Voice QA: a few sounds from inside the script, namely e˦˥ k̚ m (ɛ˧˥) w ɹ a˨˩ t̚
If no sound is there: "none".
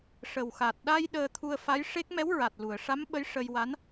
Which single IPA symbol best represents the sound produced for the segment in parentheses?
ɛ˧˥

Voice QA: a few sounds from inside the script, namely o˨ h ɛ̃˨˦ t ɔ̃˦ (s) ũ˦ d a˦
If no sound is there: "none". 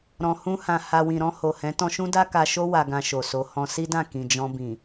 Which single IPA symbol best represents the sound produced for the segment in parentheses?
ʃ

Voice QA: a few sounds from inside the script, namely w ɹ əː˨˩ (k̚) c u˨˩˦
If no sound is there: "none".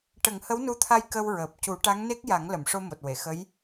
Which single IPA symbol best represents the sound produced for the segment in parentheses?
p̚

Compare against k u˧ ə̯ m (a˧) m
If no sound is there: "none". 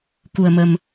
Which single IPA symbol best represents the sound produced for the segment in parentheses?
ə˧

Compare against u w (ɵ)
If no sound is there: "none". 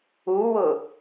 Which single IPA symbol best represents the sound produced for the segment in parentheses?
ʊ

